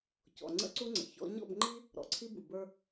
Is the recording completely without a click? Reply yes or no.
no